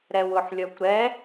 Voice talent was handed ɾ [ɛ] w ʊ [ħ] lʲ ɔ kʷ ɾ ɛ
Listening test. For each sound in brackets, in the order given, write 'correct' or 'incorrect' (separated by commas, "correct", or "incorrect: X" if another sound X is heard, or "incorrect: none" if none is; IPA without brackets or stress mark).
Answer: correct, correct